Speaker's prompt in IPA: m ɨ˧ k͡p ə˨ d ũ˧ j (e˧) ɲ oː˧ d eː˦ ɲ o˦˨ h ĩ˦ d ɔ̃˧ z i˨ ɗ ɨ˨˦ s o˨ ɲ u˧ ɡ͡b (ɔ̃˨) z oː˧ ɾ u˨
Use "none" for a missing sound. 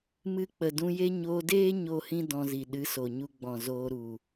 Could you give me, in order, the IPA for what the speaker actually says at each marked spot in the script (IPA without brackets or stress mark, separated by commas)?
e˦, ɔ̃˨